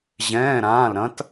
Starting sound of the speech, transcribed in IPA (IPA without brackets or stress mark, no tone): ʑ